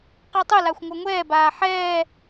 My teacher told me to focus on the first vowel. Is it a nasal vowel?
no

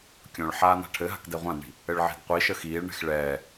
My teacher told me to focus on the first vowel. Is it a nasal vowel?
yes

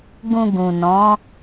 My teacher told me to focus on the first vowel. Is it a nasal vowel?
yes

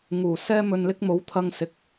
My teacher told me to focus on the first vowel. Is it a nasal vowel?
no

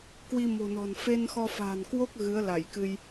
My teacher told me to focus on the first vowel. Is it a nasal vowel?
no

